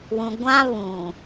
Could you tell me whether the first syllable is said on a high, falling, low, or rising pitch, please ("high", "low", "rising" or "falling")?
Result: low